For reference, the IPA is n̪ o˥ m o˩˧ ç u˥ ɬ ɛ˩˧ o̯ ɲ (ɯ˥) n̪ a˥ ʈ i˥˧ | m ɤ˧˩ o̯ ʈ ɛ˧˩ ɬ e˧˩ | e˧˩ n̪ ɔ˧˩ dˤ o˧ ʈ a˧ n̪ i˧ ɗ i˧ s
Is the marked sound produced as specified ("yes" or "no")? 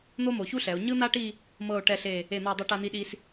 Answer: yes